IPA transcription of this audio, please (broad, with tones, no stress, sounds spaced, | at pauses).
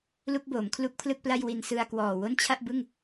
l u˥˩ k̚ b oː˩˦ m kʰ l u˥˩ k̚ pʰ l ɯ˥˩ k̚ p l a˥˩ j w i˧ n s ɯ˧ a̯ k w ɔː˨˩ w o˥˩ n t͡ɕʰ a˥˩ ʔ b ɯ˥˩ ŋ